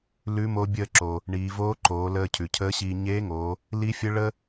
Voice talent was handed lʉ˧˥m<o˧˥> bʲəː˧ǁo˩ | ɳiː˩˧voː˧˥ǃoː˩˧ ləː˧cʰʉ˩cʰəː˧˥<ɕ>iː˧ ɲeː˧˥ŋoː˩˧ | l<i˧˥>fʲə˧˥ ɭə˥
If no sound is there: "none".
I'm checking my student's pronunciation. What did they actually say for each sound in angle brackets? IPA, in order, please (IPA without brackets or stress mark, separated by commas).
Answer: o˧˥, ɕ, i˧˥